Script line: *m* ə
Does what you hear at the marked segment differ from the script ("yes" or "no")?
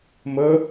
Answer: no